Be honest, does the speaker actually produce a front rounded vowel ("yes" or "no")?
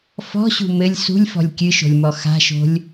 no